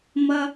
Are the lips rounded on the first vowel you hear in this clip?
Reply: no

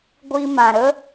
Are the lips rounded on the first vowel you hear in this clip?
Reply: no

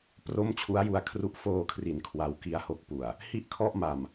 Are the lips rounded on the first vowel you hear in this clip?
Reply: yes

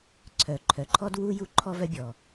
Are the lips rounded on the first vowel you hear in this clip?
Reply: yes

